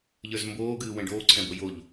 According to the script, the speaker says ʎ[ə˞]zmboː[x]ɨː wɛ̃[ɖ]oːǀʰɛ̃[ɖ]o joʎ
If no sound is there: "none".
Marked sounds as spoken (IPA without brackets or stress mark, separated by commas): ə˞, ɡ, ɖ, b